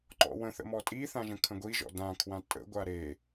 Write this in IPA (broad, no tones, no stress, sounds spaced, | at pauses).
ǃ ɔ̰ w ə̃ θ ə̰ m ɔ tʼ i θ ã ʒ ə̃ kʰ ə̃ ɡʷ i ʒ ɔ̰ d ã kʰ w ã tʼ ə̰ ɡʷ a ɾ e